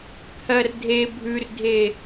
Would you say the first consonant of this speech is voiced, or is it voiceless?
voiceless